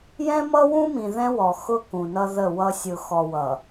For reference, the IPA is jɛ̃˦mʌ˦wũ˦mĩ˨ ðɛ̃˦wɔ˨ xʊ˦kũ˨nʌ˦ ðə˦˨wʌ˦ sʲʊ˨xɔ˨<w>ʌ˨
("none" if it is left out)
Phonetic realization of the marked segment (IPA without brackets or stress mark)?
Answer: w